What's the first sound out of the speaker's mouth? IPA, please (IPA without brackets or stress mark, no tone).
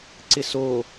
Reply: ǀ